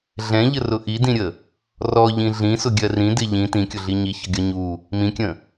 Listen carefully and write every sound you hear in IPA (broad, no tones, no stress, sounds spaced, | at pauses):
ɮ ɛ̃ ʎ ə r ʊ ʔ i d ĩ ɾʲ ə | r ɔ ʎ ĩ ɮ ĩ s ʊ ɡʲ ɜ r ĩ d ɪ ʎ ĩ t ĩ kʲ ʊ ɮ i ɲ i ç ʌ ɡʲ ɒ ɲ u | m ĩ kʲ ə̃